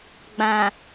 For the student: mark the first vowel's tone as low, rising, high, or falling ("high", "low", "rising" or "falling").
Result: low